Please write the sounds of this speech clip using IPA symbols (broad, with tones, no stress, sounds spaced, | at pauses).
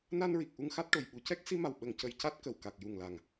n a˧ n ɹ i˨˩ k̚ ʔ u˧ ŋ x a˦˥ t̚ ʈ o˨˩ j ɓ u˨˩˨ c ɛ˦˥ k̚ s i˧ m a˨˩ w ɓ ə˨˩ ŋ c ə˨˩ j c a˦˥ t̚ k ə˨˩ w k a˨˩ k̚ j u˨˩ ŋ l a˨˩ ŋ